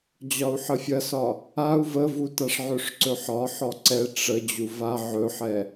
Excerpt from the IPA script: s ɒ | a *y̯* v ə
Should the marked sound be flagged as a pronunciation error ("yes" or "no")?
yes